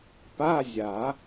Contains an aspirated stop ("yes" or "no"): no